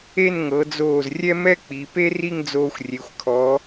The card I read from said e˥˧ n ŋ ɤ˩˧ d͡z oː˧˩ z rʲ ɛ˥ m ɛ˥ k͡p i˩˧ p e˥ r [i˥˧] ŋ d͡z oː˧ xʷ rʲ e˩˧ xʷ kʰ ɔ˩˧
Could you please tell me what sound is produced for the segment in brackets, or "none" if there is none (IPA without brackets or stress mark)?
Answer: i˥˧